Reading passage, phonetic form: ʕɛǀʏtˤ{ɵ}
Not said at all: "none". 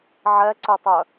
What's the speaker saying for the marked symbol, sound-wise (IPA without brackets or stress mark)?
œ